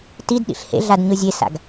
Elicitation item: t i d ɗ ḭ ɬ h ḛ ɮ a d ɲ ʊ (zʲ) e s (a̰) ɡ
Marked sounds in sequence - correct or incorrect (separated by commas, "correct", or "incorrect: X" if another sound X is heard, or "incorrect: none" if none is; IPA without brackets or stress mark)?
correct, correct